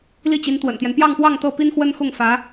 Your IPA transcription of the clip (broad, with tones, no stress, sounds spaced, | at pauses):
l i˥˩ t͡ɕ i˧˥ n t̪ w ə̰˨˩ n t̪ j ɛ˦ n p j ɑ˥˧ ŋ p w ɑ˥˧ ŋ t̪ ɤ˥˩ p i˥ n x w ə˥ n x ʊ˥˩ ŋ f ä˧˥